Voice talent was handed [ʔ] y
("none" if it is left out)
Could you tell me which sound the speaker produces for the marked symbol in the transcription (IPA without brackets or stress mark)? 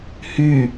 h